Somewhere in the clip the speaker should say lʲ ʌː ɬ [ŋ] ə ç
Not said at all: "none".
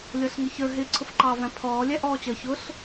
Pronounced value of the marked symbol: ŋ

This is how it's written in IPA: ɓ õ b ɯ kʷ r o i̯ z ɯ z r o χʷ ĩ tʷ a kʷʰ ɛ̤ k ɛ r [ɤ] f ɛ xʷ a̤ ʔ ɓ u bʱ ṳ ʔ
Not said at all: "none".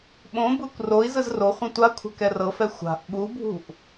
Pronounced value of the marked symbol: ɤ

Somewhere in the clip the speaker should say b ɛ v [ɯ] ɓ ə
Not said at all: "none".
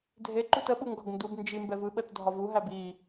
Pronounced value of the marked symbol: ɯ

